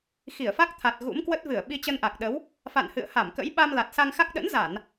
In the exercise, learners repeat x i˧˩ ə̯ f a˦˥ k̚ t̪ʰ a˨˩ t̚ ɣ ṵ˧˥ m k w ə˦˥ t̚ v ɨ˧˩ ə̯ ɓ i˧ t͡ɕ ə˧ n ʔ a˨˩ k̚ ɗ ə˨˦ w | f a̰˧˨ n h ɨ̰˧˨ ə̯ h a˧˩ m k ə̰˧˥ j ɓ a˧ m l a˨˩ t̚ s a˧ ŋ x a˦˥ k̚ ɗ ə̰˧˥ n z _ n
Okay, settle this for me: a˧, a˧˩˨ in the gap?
a˧˩˨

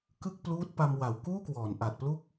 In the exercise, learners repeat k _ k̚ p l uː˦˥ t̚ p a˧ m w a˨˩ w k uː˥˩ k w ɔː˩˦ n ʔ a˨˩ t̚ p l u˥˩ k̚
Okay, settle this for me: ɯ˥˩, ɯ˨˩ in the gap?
ɯ˥˩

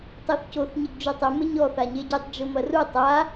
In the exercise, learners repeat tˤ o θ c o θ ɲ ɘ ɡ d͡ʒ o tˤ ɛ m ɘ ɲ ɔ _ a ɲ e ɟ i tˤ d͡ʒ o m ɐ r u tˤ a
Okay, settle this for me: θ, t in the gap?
θ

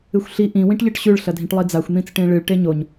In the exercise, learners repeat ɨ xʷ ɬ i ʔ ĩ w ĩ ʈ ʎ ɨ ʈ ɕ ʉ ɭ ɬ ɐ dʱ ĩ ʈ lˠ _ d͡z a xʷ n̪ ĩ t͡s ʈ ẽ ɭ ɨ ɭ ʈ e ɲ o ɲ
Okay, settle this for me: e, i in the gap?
i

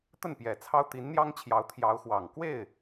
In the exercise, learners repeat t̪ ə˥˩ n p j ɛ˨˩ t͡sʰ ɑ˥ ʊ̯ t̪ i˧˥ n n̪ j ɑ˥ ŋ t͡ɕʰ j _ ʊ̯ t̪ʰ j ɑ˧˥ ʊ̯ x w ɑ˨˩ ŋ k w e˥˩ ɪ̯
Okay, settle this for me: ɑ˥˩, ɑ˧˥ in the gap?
ɑ˧˥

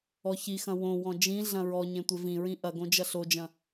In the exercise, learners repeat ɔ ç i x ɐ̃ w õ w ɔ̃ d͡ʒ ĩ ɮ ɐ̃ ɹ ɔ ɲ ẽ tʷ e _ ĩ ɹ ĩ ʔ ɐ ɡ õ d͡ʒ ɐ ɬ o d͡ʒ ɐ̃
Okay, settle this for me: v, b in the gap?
v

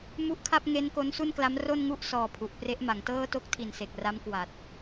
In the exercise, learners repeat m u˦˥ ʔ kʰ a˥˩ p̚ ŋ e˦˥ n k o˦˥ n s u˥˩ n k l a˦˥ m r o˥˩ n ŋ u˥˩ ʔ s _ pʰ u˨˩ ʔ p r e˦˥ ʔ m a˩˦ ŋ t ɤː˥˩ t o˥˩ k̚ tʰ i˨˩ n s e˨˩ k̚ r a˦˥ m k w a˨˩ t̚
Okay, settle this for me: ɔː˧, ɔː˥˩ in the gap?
ɔː˧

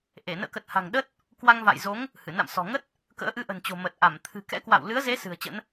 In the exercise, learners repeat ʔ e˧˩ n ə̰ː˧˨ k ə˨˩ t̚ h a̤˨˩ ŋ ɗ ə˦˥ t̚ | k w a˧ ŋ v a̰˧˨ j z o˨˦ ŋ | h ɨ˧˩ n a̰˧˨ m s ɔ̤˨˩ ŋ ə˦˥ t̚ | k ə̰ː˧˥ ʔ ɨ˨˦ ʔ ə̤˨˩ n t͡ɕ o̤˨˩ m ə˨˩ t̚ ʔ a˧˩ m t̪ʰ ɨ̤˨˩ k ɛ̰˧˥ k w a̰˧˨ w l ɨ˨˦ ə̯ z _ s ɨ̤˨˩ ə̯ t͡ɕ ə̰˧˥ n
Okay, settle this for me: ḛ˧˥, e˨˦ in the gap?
e˨˦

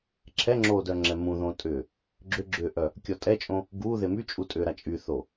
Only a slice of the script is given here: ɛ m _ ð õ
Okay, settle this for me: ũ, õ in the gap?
ũ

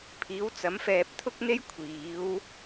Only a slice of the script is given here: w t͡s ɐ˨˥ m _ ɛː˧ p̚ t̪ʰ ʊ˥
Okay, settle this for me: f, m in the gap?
f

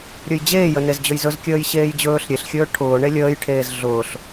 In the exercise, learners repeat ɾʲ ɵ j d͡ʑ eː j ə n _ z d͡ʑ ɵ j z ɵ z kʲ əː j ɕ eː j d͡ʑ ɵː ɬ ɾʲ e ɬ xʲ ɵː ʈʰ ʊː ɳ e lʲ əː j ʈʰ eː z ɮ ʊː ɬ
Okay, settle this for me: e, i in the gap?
e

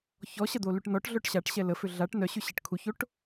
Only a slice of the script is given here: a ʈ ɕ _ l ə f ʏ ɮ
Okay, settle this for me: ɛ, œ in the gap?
ɛ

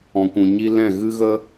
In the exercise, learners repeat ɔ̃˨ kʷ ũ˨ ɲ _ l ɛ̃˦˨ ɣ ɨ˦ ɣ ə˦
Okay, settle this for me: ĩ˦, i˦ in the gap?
i˦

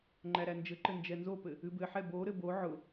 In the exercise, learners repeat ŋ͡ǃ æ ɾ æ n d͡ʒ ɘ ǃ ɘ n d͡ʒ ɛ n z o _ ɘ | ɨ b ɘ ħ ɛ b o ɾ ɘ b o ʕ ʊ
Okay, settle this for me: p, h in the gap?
p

